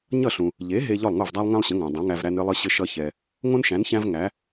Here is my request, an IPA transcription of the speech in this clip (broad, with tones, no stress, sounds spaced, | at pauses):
ɲ ʌ˥˩ ɬ ũ˩ | ʎ e˩˥ ɦ e˧ ʎ ɔ˥˩ lˠ ŋ o˥˩ v dˤ æ˥ lˠ ŋ æ̃˥ lˠ ɕ ə̃˩˥ ŋ æ̃˩ dˤ õ˩˥ ŋ æ˧ v ɾ æ˧ n ɾ ɨ˧ lˠ ɨ˧ ɕ ɘ˧ ʃ ʌ˧ ç ɛ˩ | ŋ õ˥ n ʃ æ̃˩˥ n ç æ̃˥ v ŋ æ˩˥